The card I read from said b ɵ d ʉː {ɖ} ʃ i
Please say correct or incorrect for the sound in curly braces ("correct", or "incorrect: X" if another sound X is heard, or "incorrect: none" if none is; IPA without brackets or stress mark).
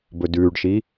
correct